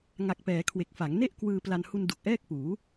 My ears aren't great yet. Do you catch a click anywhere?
no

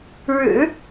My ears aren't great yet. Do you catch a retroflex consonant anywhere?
yes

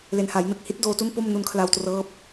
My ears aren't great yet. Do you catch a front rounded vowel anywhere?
no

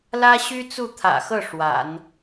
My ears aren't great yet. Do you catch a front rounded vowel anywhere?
yes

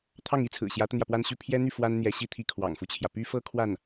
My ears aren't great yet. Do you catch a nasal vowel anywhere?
no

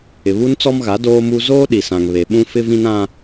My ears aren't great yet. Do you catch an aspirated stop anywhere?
no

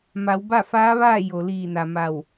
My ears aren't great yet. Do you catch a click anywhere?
no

